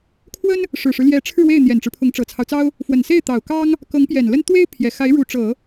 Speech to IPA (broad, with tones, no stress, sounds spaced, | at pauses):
kʰ w ə˥ n | ʂ ɻ̩˨˩ ʂ ɻ̩˦ l j ɛ˧˥ ʈ͡ʂʰ ɻ̩˥˧ w e˥˩ ɪ̯ n̪ j ɛ˨˩ n ʈ͡ʂ ɻ̩˦ pʰ ʊ˧˥ ŋ ʈ͡ʂ ɤ˨˩ t͡sʰ ɑ˦ ʊ̯ t͡s ɑ˥ ʊ̯ | f w ə˨˩ n s e˥˩ ɪ̯ t̪ ɑ˨˩ ʊ̯ k ɑ˥ ŋ | k ɤ˧˥ ŋ p j ɛ˨˩ n l ə˥ n t̪ w e˥ ɪ̯ pʰ j ɛ˨˩ x a˧˥ ɪ̯ ɻ u˧˥ ʈ͡ʂ ɤ˨˩˦